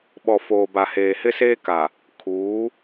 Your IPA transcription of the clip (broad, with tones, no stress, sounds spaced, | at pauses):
ɓ ɔ˨ f oː˨ b a˨ h eː˨ h ɪ˦ s eː˦ k a˨ | kʰ uː˨˦